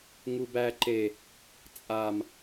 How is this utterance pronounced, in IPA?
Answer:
ŋ u b æ ǃ e | t͡sʼ a m

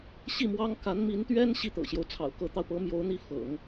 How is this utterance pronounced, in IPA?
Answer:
ɕ i˥˩ m w ɑ˥ ŋ k a˧˥ n m i˧˥ n t̪ ɥ ɛ˥ n ɕ i˥˩ t̪ ɤ̰˨˩ ɕ j o˦ ʊ̯ t͡sʰ ɑ̰˨˩ ʊ̯ k ɤ˧˥ t̪ ɑ˧ ʊ̯ p ɤ˧˥ m j o˧˥ ʊ̯ n̪ i˥˩ f ɤ̰˨˩˦ ŋ

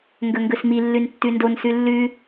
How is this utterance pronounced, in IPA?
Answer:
ŋ ɡ ɵ ŋ ɡ ɵ s m i lː ʉ n tː ʉ n d o n s ʉ lː ʉ

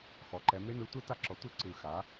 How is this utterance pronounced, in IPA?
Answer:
x ɔ˩˥ ǃ ɛ˩˥ m e˥ n ɯ˩˥ tʷ e˥ t a˥ ǁ ɔ˩˥ tʷ ɯ˥ ǀ ɯ˨˩ x a˩˥

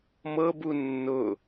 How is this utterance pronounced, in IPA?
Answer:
m ɤ b u nː ʊ

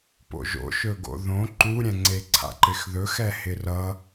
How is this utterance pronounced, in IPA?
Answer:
p o̰ ʒ o̰ ʃ ɵ ɡ o̰ ð õ ǃ u ɾʲ ɛ̃ ŋ͡ǀ e ǀʰ a̰ ǃ ɪ x ð ɵ x ɛ h ɪ r ʌ

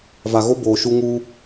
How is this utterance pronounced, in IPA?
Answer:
v a˨ ɣ o˦ b oː˨ ʃ u˦ ŋ uː˦

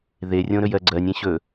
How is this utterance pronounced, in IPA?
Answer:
ð e rʲ õ ɾ ɵ j ɜ ɡ͡ǀ ɜ nʲ ẽ ɕ ɵ

